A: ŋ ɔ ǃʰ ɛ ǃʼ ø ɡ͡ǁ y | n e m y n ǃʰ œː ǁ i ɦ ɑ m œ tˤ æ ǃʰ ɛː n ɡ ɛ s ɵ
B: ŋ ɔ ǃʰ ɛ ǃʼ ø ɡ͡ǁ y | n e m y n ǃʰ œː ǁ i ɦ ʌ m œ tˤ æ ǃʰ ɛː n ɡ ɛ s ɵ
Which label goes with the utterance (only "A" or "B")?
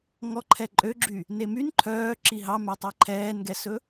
A